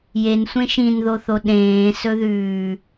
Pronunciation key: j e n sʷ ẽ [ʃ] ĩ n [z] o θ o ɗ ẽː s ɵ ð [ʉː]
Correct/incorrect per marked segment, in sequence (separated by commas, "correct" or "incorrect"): correct, incorrect, correct